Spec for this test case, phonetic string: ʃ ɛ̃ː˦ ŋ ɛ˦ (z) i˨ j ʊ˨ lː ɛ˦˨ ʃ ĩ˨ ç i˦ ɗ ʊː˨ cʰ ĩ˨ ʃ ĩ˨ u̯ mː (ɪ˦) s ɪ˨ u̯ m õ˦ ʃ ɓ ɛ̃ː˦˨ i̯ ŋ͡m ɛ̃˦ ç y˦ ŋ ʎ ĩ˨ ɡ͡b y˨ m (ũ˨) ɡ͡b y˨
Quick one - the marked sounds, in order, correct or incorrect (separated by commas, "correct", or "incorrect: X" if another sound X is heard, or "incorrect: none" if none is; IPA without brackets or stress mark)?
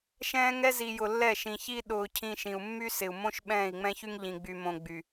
correct, incorrect: y˦, incorrect: õ˨